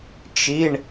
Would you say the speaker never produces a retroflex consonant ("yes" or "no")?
no